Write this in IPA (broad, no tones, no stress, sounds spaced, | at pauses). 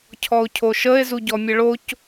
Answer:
cʰ ɔ o̯ cʰ o ʃ ə e̯ z u ɟ ɔ mʲ ə ɭ o c